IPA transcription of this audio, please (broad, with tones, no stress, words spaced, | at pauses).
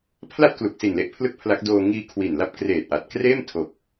pʰla˥˩t̚klu˨˩k̚si˨˩nle˦˥ʔ pʰlɯ˥˩k̚pʰla˦˥k̚doː˧ ŋiː˧ kʰwi˨˩nla˦˥p̚ kreː˨˩t̚ʔa˨˩t̚kreː˥˩m tʰo˨˩k̚